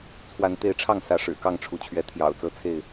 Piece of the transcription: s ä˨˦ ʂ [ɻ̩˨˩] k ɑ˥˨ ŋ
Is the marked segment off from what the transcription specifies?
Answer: no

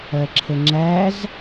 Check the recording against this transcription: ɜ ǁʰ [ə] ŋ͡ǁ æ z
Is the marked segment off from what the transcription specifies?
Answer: no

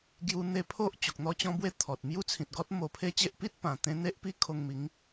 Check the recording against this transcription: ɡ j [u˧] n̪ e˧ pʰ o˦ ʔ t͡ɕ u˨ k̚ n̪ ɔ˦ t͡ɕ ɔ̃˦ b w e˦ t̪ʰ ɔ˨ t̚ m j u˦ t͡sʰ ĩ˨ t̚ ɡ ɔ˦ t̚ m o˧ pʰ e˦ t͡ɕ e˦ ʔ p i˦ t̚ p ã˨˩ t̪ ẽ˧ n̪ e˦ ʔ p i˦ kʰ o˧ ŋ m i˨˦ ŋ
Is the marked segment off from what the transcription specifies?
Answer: no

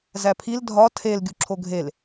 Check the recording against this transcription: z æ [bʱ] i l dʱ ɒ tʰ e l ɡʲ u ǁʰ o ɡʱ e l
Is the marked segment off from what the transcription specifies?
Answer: yes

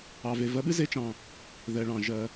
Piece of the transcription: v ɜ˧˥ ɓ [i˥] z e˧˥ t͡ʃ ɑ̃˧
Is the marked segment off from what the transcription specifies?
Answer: yes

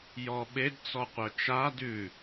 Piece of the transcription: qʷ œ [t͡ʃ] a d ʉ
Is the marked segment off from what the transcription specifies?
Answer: no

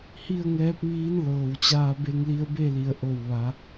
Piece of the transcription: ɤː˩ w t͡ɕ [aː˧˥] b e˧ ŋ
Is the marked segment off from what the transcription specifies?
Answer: yes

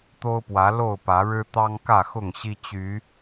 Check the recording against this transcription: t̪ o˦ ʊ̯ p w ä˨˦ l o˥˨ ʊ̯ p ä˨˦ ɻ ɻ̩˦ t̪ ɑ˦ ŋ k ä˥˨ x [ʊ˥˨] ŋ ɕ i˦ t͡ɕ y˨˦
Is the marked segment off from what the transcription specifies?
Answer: no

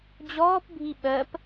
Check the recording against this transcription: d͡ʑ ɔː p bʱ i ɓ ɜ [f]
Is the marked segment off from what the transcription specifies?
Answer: yes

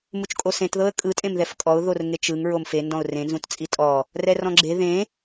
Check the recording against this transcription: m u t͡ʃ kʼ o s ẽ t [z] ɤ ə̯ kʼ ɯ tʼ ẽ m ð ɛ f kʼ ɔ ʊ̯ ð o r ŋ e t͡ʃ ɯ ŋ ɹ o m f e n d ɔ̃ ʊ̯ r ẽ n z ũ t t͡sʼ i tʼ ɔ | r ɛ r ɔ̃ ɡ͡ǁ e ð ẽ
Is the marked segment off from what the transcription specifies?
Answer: yes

